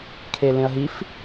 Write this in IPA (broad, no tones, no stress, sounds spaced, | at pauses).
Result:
kʰ e l ẽ ɐ̯ ɦ i f